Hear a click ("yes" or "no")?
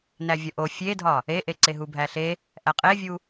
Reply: yes